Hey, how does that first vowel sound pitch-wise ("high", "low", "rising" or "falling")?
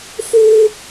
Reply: high